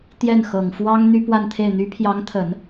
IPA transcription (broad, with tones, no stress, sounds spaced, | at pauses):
t̪ j ɛ˥˩ n x ɤ˨˩ ŋ f w ɑ˥ ŋ n̪ y˥ p w a˥˧ n t̪ʰ e˥˩ ɪ̯ n̪ y˧˥ pʰ j ɑ˧˥ ŋ t̪ʰ ə˨˩˦ n